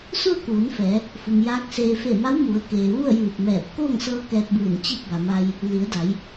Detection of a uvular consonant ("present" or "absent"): absent